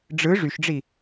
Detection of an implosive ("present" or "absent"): absent